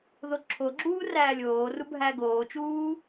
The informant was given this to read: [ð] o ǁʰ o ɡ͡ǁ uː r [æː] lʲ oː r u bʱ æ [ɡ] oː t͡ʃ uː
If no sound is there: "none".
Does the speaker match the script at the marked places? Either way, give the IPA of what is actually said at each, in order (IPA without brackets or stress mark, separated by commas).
ð, æː, ɡ